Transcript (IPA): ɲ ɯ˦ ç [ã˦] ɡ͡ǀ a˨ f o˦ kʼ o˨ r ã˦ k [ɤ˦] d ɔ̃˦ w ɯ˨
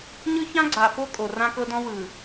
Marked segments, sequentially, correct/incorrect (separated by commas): correct, correct